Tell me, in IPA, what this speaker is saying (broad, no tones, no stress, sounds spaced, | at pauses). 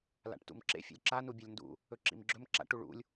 l a̰ ʈ t ṵ m ǁ ḛ fʲ o̰ lʲ ǁ a n u bʲ o lʲ n d ṵ | ɵ ǁ ḭ m ɡ͡ǁ ɵ m ǁ a̰ ʈ u ɭ ṵ lʲ